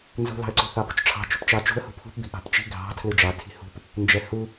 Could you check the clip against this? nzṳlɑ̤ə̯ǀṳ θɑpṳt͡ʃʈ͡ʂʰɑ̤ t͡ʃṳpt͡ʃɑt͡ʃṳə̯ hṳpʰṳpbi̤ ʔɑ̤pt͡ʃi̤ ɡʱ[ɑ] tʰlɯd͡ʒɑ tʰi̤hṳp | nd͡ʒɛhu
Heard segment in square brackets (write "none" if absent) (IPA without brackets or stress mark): ɑ̤